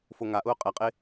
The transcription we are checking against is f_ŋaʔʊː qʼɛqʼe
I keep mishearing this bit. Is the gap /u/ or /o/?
o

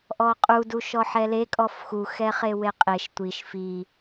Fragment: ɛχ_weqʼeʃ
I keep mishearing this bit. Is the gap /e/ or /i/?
e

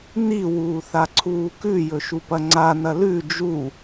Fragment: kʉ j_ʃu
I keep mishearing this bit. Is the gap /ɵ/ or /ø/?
ɵ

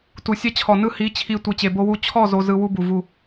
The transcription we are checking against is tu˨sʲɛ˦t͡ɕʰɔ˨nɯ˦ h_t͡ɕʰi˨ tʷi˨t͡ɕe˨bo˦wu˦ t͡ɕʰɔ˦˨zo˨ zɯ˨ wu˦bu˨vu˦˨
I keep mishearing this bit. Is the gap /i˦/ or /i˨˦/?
i˨˦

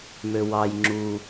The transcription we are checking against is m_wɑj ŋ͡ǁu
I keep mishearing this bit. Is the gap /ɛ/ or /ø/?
ø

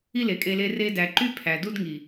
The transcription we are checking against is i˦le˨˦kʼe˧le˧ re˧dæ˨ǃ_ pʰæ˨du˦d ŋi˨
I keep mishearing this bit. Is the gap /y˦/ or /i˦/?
y˦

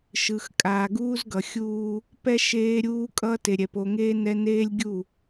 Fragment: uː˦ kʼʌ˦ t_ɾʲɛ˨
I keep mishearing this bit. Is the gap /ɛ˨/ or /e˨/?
e˨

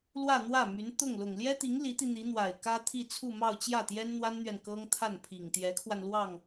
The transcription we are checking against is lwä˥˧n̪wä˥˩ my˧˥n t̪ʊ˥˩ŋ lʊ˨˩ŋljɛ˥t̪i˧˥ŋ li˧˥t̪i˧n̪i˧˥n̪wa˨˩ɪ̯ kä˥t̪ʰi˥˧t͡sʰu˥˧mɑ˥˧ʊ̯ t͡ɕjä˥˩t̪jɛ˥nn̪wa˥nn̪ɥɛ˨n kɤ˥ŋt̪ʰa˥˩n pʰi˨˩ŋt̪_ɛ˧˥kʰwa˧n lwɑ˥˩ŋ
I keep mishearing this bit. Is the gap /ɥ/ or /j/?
j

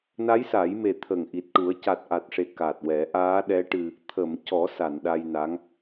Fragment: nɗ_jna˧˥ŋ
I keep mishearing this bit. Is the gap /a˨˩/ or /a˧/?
a˧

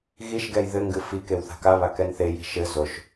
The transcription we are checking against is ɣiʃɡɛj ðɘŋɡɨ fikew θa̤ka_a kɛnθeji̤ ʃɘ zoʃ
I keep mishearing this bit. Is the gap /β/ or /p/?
β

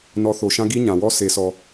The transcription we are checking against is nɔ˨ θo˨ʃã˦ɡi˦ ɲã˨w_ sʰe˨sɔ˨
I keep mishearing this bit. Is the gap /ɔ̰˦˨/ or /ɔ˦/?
ɔ˦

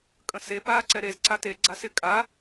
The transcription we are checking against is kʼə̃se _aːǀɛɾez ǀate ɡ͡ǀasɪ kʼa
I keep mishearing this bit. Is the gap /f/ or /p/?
p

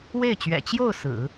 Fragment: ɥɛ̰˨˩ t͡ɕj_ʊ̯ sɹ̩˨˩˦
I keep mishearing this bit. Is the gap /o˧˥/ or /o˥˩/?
o˥˩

